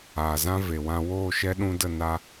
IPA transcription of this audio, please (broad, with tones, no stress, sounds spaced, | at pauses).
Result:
aː˨ z ã˦ v e˨ w ã˧ w oː˦˨ ʃ ɛ˦ ɗ ũ˧ d ə˦˨ n a˧